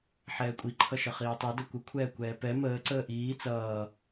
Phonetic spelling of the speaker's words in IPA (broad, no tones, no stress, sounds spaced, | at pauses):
ħ ɛː kʷʼ i ǃʰ ʌ ʃ ʌ χ iː tˤ i d ʌ kʷ ə kʷʰ ɛː kʷ ɛː p ɛ m əː ǀ əː ʔ iː t͡s ʌː